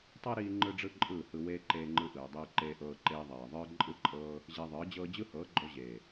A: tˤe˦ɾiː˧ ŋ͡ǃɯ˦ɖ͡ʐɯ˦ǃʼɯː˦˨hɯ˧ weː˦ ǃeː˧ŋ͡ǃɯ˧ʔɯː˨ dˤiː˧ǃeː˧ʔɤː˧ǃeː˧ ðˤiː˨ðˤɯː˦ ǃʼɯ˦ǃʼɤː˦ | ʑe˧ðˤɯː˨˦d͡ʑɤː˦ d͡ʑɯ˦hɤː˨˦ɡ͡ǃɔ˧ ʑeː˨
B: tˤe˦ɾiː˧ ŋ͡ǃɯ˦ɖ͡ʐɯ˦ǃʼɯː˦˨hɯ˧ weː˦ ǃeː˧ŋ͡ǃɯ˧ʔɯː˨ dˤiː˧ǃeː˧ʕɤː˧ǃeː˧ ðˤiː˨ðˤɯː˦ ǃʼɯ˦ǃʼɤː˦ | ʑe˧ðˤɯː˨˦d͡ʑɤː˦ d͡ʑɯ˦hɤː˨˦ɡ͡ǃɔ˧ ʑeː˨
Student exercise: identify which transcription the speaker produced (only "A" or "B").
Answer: A